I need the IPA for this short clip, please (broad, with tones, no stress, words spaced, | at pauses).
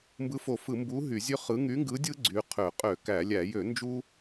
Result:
mbɯ˨˥fo˧˩˧fɯ˧˩˧mbu˨˥ ɦy˧˩˧zʲø˦χɯ˨˥ ŋy˨˥ŋɡɯ˨˥dʲɯ˦ ɡ͡ǀy˨˥qʰø˧˩˧ qʼø˧˩˧kæ˧˩˧lʲæ˧˩˧ jø˧˩˧ nd͡ʒu˦